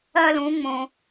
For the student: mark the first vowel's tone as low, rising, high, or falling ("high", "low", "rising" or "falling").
high